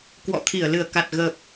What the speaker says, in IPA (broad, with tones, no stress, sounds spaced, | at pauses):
k w ɔ̰˧˨ t̪ʰ i˧˩ ə̯ l ɨ˧˩ ə̯ k a˨˩ t̚ ɣ ə˨˩ p̚